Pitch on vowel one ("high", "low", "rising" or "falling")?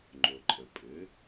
low